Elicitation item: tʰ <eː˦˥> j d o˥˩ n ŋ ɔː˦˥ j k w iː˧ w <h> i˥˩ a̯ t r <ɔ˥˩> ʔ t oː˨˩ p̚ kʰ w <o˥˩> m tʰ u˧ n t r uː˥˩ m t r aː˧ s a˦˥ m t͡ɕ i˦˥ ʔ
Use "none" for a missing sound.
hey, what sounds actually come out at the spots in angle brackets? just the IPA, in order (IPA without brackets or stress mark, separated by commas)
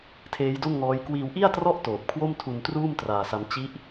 eː˦˥, ʔ, ɔ˥˩, o˥˩